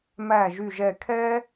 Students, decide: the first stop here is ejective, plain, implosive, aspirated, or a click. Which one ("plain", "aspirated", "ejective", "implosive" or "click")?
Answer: aspirated